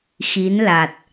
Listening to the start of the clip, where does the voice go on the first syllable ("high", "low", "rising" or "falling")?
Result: rising